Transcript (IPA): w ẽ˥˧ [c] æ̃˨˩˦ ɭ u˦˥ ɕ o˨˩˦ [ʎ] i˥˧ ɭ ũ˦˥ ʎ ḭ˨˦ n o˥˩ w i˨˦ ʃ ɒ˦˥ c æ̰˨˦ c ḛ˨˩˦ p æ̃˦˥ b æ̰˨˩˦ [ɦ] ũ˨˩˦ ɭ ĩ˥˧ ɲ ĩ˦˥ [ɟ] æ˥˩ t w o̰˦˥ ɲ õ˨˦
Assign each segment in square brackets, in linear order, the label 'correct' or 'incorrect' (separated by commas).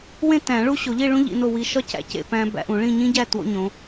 incorrect, correct, incorrect, correct